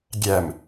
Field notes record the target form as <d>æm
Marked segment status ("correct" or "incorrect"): incorrect